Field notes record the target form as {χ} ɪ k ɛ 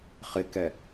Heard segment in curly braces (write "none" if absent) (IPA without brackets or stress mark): χ